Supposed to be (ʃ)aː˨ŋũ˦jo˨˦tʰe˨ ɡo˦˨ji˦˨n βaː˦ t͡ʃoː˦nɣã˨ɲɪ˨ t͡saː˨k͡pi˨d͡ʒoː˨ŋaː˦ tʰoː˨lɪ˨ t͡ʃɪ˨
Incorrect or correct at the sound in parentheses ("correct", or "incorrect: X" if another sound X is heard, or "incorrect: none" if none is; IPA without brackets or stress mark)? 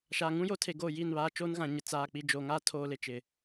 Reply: correct